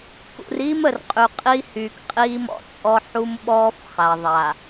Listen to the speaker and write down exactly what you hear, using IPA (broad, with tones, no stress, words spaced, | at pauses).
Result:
kṵ˨r iː˦m ə˨r qʼy˨qʼi˦hyː˨kqʼiː˦ mɔ̰˦t͡sʼɔ˦ ħu˦mɓɔː˦f χa˨ ðˤa˨